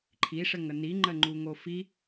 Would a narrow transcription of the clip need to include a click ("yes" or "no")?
yes